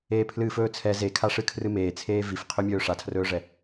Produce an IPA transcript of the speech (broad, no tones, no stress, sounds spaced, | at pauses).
eː pʰ l ɨː f ɵː t͡sʰ ɛ z e kʰ a ʂ ɨ kʰ r ɨ m eː t͡sʰ eː v i f qʰ ɵ mʲ ɵː ʂ a tʰ r ɵː ʐ ɛ